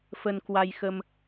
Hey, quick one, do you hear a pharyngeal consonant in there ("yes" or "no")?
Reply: no